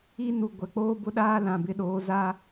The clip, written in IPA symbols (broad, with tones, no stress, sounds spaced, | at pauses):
i˦ n u˨ ɡʷ ɛ˨ k͡p oː˦ b ʊ˦ ɗ aː˦ l ã˨ b ɪ˦ ɗ oː˨˦ z aː˦